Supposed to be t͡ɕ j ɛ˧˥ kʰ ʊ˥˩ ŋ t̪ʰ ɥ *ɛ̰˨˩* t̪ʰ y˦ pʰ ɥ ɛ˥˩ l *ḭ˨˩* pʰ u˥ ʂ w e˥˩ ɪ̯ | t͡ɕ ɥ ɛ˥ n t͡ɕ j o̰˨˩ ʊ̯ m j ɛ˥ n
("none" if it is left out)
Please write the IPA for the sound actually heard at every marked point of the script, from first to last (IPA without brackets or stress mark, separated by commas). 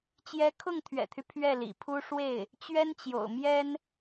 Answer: ɛ̰˨˩, ḭ˨˩